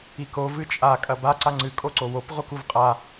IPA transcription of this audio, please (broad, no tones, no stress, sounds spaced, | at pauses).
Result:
i k o v ɨ t͡ʃʼ a kʼ ɐ b a ǀ a ŋ͡ǀ ɨ kʼ o ǀ o w o p ʁʷ ɨ k u v qʼ a